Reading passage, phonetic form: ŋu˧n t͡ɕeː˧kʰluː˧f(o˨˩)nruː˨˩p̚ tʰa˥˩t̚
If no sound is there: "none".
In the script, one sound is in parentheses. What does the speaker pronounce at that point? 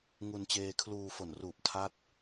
o˨˩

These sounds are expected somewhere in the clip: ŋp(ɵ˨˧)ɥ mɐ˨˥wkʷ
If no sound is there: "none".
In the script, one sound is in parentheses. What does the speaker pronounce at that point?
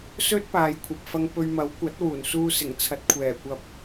ɵ˧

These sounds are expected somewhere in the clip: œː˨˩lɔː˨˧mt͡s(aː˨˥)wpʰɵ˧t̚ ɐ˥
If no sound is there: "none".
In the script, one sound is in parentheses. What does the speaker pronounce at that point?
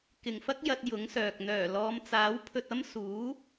aː˨˥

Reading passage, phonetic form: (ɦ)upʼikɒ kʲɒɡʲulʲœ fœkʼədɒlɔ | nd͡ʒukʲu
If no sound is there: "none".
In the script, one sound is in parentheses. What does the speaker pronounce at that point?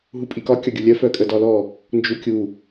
ɦ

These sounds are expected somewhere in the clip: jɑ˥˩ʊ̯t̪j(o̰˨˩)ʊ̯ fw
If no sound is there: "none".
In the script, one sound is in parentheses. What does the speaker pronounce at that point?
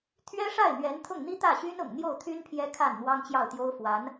o˥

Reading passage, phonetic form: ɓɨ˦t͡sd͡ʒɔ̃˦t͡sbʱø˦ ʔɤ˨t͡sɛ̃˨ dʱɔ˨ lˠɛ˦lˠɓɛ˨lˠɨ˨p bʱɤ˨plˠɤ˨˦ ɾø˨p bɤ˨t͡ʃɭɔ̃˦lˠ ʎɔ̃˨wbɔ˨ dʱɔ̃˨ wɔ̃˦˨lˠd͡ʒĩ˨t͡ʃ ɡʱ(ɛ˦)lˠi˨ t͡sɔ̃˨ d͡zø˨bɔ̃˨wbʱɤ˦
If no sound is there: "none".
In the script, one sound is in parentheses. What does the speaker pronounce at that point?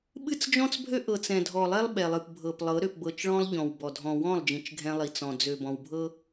ɛ̃˦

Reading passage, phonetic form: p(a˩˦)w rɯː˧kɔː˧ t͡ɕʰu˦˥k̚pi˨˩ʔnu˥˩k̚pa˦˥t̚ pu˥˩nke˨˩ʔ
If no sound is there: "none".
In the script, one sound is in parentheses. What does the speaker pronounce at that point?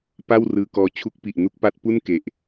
a˥˩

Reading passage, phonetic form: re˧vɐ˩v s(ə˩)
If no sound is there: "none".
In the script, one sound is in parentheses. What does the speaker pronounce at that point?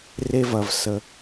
ə˩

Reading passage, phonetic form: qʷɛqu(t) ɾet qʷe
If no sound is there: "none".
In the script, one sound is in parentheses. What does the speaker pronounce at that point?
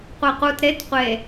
t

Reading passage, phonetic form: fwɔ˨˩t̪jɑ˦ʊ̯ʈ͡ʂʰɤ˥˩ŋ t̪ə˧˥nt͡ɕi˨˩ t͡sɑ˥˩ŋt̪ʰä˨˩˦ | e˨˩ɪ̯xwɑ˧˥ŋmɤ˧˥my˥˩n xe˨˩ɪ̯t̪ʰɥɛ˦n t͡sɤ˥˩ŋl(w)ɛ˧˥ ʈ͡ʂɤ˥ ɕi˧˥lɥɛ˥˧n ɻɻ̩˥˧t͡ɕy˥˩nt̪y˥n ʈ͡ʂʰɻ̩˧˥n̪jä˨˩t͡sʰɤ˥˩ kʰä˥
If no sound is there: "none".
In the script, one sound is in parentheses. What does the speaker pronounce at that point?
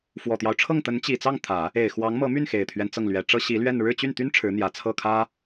ɥ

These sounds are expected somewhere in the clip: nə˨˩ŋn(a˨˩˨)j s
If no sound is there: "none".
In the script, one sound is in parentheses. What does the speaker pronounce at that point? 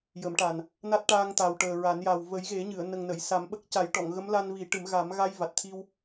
ə˨˩˨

